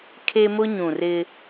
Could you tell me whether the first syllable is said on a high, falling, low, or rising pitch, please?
high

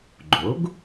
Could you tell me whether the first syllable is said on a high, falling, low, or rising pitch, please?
rising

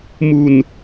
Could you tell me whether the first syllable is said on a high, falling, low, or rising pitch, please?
low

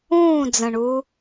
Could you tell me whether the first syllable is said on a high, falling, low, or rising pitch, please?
falling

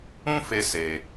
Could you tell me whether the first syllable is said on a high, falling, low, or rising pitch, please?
high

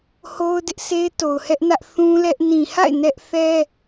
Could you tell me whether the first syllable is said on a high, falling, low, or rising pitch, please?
high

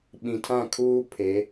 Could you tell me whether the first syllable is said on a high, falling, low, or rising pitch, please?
low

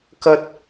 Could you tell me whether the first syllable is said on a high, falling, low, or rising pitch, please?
high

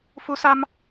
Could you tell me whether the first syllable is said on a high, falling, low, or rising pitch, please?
rising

